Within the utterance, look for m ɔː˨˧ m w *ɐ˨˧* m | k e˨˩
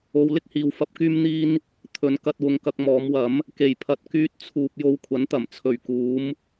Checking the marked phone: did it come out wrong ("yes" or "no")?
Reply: yes